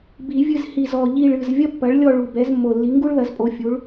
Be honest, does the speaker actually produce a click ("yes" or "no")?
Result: no